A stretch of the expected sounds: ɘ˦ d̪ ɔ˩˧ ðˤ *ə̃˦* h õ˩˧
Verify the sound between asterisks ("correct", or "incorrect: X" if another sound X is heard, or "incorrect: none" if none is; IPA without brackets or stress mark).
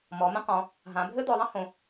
correct